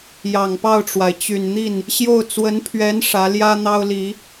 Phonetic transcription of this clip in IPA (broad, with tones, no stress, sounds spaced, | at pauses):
j ɑ˨˩ ŋ p ɑ˥˩ ʊ̯ ʈ͡ʂ w a˩ ɪ̯ t͡ɕ y˨˩ n n̪ i˥˩ n | ɕ j o˥˩ ʊ̯ t͡s w ə˧˥ n pʰ ɥ ɛ˧˥ n ʂ ä˧˥ l j ä˥ n̪ ɑ˥ ʊ̯ l i˨˩˦